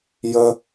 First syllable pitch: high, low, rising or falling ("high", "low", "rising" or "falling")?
high